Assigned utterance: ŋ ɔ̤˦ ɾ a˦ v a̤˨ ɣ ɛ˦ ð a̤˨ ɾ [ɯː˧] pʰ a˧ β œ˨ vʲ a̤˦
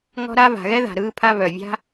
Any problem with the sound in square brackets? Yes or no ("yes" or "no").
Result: no